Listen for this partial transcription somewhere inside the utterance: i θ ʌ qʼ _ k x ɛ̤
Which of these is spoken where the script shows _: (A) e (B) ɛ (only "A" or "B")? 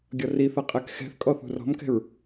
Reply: B